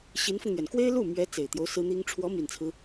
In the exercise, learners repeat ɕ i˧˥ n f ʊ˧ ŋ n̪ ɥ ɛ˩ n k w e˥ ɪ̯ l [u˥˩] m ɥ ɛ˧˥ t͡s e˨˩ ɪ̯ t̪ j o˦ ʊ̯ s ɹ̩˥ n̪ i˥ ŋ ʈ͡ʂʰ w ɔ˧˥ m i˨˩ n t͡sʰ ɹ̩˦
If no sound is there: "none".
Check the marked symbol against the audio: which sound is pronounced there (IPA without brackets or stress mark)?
u˥˩